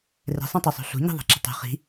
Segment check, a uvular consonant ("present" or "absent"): present